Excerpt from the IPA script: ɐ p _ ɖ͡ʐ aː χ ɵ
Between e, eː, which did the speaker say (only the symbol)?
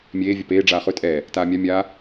eː